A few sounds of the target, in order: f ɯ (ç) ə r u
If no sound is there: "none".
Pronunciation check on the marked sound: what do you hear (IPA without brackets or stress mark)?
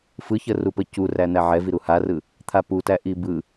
ç